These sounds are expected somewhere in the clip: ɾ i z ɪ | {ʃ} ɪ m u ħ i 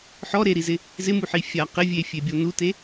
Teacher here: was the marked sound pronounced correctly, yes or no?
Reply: no